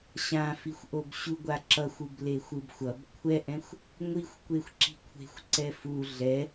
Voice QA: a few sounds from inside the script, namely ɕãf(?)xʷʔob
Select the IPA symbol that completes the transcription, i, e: i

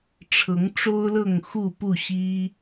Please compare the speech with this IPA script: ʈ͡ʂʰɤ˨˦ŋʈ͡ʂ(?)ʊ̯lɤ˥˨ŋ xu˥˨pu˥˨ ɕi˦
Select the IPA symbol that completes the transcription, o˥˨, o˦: o˦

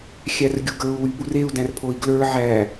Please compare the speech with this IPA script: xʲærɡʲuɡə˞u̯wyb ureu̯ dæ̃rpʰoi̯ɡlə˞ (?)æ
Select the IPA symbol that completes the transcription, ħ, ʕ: ʕ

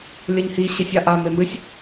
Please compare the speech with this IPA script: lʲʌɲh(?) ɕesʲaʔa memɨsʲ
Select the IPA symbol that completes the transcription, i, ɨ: i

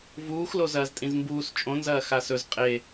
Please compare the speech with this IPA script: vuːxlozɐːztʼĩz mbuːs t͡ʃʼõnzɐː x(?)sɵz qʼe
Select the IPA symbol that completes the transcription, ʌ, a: a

